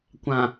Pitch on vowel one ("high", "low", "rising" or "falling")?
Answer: low